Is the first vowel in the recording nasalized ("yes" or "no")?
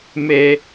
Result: no